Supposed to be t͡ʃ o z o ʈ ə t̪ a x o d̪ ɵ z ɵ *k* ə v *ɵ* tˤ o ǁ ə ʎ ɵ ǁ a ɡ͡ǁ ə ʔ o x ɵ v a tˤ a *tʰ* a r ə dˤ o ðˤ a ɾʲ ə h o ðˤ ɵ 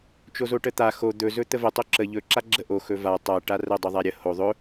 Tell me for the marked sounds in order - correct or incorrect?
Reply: incorrect, incorrect, incorrect

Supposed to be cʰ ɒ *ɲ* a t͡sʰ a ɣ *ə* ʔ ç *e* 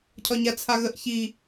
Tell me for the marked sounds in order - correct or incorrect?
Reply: correct, correct, incorrect

